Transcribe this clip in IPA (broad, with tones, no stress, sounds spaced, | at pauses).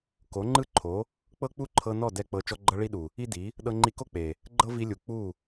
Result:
k o˨˦ ŋ͡ǃ ɯ˦ ǃʰ o˨˦ | k͡p ɤ˦ k͡p u˦ ǃʰ ɤ˧ n ɔ˦˨ d ɛ˦ k͡p ɤ˧ t͡ʃ ɔ˧ ɡ͡ǃ ɤ˧ ɭ i˦ ɗ u˨ | i˦ d i˨˦ | ɗ ɤ˧ ŋ͡ǃ i˧ k o˦ k͡p e˨ | ɡ͡ǃ ɤ˦ v i˧ lʲ u˨ k͡p u˦˨